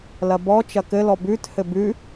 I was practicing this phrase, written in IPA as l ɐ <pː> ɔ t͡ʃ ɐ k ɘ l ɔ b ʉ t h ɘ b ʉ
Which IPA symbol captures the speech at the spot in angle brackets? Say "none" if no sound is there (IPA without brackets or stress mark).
b